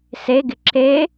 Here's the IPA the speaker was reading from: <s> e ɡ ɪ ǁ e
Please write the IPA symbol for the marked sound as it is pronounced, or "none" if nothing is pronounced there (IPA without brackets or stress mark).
s